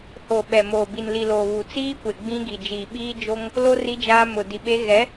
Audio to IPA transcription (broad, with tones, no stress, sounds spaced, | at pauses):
h o˨ ɓ ɛ˨ m oː˨ b i˨ n l i˨ l oː˨ β u˨ t͡s iː˦ kʷ e˨ ɡ͡b ĩ˦ ɡ i˨ d͡ʒ iː˨ ɓ iː˦ d͡ʒ o˦ ŋ | l o˦ r i˦ d͡ʒ aː˦ m ʊ˨ d i˨ ɓ e˦ ɣ ɛ˨˦